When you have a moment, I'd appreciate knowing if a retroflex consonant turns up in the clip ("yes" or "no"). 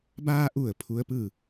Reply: no